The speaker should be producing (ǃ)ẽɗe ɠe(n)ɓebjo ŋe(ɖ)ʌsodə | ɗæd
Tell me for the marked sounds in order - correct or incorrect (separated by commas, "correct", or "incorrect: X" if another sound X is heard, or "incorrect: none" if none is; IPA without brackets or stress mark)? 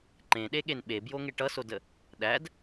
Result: correct, correct, incorrect: ʈ